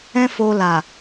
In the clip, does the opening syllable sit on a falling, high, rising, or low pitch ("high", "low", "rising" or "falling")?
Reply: high